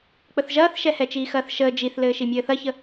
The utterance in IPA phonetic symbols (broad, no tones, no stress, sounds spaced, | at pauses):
k͡p ə θ ʒ ɐː θ ʃ ɛ h ɛ t͡ʃ iː x ɐː θ ʃ əː d͡ʒ i θ l ɘː ʃ i mʲ ɘː θ ɐ ç ə